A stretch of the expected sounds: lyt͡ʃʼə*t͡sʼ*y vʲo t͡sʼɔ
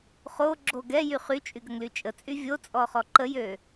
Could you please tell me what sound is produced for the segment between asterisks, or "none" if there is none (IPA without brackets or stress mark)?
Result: t͡sʼ